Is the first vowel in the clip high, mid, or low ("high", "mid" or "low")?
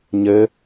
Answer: mid